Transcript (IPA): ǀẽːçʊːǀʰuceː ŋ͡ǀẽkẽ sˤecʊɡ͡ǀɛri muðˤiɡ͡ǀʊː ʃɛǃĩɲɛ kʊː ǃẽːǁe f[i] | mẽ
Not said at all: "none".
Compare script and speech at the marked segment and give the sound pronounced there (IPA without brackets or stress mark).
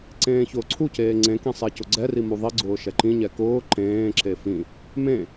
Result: ĩ